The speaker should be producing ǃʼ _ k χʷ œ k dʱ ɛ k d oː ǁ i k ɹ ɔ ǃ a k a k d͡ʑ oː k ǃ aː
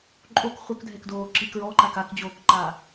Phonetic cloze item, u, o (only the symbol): o